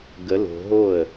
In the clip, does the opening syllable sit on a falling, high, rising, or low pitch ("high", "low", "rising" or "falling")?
rising